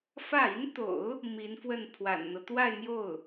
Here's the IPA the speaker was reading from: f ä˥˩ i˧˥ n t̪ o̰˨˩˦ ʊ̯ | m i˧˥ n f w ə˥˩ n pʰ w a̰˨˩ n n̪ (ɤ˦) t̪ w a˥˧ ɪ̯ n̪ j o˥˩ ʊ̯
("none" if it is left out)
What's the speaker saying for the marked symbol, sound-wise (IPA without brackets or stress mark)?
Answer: ɤ˦